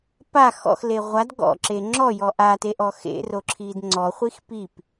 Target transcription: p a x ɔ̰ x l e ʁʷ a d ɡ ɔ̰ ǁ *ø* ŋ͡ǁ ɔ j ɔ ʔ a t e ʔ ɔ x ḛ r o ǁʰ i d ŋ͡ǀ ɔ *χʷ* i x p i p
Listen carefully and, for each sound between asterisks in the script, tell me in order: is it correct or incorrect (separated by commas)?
incorrect, correct